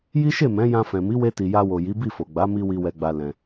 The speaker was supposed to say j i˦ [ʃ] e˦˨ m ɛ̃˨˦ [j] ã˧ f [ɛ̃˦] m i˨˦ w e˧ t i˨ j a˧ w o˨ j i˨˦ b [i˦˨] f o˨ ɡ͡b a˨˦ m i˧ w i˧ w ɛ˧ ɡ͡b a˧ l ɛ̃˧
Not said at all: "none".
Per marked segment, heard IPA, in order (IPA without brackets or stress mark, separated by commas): ʃ, j, ɛ̃˨, i˦˨